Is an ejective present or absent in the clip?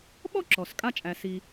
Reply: present